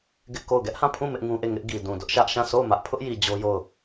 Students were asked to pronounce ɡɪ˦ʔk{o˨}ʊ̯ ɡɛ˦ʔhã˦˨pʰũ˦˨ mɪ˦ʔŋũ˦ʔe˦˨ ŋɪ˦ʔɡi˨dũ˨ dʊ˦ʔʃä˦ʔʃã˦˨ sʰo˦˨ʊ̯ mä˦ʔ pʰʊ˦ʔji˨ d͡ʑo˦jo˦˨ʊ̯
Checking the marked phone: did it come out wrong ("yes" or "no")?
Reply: yes